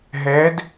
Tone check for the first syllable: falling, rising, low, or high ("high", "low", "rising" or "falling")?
rising